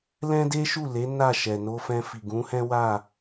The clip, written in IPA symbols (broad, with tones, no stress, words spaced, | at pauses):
lɛ̃˦de˦ʃu˦˨le˨˦ na˦˨ʃɛ˨no˧fɛ̃˧ fi˨ ɡũ˨˦hɛ̃˦wa˦˨